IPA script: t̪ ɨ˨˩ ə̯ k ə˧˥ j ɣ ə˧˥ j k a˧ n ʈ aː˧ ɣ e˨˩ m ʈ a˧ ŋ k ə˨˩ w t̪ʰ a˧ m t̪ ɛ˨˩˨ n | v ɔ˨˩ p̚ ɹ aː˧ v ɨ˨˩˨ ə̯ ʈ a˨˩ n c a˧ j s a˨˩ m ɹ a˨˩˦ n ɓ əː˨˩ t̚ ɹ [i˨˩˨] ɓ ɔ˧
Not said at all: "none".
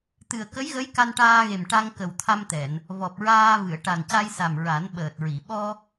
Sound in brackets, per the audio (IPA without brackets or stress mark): i˨˩˨